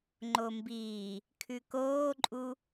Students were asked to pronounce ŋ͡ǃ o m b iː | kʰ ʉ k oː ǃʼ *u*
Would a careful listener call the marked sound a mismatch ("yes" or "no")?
no